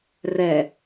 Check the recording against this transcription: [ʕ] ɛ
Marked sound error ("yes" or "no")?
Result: yes